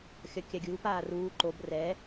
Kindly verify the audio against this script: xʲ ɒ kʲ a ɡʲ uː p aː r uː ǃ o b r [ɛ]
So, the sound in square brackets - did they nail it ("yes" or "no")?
yes